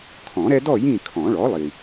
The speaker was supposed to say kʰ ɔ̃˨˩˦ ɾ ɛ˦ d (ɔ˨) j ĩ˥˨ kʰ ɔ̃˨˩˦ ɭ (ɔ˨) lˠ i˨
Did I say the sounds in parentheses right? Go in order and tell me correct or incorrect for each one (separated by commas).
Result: incorrect, incorrect